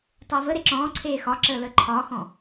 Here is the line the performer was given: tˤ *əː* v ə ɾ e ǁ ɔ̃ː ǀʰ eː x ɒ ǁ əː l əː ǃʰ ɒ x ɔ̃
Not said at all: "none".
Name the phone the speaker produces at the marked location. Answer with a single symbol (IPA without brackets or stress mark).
əː